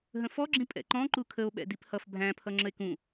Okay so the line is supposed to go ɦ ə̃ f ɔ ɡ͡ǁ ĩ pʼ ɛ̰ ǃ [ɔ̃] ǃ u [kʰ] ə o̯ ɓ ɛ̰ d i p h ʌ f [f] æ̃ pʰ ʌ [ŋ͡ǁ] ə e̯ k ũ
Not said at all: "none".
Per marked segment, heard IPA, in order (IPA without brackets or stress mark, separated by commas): ɔ̃, kʰ, bʱ, ŋ͡ǁ